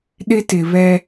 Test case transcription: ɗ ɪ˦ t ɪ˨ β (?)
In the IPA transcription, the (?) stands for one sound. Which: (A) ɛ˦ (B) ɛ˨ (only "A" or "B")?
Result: A